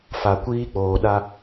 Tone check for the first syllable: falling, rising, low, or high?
low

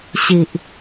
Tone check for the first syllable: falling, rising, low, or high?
low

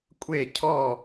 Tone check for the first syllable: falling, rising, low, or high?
falling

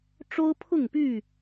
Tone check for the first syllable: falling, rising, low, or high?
high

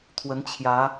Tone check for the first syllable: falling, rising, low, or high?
rising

